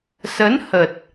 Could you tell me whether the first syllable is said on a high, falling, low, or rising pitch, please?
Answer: rising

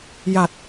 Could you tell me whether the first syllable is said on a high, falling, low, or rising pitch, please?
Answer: low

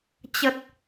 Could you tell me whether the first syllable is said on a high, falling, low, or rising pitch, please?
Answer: low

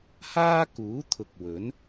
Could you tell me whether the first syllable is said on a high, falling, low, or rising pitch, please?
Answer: high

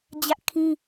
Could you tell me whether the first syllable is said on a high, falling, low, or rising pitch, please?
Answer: high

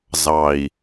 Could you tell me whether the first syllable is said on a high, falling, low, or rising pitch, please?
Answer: low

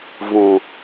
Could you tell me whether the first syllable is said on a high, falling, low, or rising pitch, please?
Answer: low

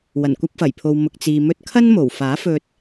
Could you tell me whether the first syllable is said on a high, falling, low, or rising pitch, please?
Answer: low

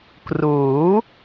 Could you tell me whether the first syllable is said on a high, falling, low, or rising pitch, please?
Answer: rising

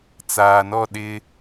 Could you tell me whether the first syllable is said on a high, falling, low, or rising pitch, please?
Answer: low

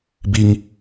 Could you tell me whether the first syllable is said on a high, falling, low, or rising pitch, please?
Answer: low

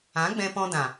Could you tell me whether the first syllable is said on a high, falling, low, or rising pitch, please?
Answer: rising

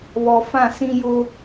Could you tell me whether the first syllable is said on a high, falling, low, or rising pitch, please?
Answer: low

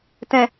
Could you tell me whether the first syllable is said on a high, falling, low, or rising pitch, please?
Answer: low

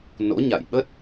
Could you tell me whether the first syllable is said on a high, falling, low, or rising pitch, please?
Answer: rising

